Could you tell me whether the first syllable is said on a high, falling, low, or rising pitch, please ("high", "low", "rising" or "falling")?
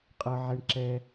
high